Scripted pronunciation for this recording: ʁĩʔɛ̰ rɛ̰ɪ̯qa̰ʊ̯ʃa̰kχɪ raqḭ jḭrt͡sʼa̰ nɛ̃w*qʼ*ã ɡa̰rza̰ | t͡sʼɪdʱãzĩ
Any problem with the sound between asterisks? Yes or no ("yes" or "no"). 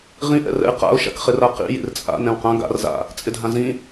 yes